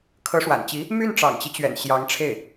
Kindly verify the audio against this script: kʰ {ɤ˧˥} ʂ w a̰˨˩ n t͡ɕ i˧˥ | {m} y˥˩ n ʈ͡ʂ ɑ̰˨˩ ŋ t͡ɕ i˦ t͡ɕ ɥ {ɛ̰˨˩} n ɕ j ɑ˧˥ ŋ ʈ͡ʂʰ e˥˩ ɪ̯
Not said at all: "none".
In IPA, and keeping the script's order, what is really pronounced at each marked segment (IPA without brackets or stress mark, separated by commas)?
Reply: ɤ˧˥, m, ɛ̰˨˩